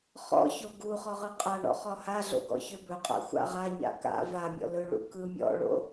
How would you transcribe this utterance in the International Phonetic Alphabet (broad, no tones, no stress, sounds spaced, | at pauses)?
χ ɔ̰ ç o ɡ u χ ɔ ʁ ɯ qʼ a ɳ ɔ̰ χ ɔ h a ɮ o̰ ɡ ɔ̰ ç ø b ɵ qʼ a̰ xʷ a̰ ʁ a ɲ a̰ k a̰ v a mʲ ɔ̰ l ɵ ɭ ṵ k ɯ mʲ ɔ̰ ɭ o̰